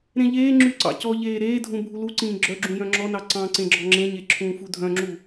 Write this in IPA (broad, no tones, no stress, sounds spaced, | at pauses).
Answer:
ɾ ẽ ʎ eː ŋ͡ǁ y ǀ ɑ̰ c ɔ ʎ eː ɾ eː dʱ ũ bʱ u l u ǀ ĩː ɡ͡ǁ œ ɡ͡ǁ ũ j œ̃ ŋ͡ǁ ɔ n ɑ ǀ ɑ̃ ǀ ẽ ɡ͡ǁ ɔ ŋ͡ǁ ẽ ɲ e ǁʰ ũː f u dʱ œ̃ ŋ͡ǁ u